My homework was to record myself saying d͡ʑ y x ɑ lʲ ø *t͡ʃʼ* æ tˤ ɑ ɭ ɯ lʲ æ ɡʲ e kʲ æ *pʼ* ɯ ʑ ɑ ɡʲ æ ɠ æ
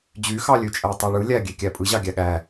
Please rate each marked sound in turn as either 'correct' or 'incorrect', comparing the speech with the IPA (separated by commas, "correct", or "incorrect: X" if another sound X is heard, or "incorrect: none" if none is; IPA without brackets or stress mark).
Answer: correct, correct